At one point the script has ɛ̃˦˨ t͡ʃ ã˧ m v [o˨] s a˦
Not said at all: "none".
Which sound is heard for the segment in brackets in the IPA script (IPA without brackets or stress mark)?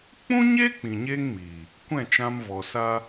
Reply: ɔ˨